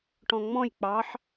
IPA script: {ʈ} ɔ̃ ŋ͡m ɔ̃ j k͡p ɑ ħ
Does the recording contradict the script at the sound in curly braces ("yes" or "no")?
no